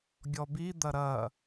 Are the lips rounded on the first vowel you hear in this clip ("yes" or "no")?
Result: yes